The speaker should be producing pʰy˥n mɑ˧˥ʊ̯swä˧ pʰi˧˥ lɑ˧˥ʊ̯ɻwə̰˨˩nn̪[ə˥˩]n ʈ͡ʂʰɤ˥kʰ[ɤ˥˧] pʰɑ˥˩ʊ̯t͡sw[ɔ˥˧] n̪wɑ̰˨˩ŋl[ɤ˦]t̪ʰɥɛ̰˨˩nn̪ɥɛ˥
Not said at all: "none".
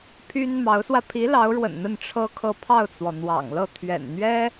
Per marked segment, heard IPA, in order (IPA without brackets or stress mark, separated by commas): ə˥˩, ɤ˥˧, ɔ˩, ɤ˥˩